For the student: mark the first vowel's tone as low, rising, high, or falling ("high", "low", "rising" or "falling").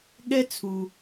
high